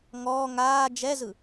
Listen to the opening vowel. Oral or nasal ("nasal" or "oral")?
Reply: oral